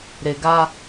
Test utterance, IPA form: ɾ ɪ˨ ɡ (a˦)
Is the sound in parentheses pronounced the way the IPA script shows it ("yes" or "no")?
yes